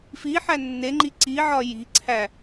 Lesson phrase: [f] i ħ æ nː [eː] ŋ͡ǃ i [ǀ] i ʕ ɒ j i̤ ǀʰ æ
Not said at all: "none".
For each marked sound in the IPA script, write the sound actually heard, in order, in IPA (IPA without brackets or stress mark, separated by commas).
f, e, ǀ